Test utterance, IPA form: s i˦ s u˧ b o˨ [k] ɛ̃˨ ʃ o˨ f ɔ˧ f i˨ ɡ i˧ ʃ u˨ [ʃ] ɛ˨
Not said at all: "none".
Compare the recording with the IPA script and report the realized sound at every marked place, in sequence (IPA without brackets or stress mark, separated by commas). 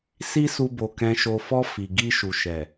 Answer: k, ʃ